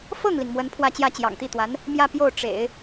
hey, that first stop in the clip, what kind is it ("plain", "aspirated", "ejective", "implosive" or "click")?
aspirated